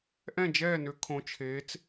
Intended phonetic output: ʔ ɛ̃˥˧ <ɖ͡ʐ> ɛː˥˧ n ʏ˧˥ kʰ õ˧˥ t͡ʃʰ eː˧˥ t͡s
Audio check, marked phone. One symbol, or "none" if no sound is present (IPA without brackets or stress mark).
d͡ʒ